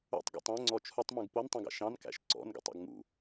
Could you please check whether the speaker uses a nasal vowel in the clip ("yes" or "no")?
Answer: yes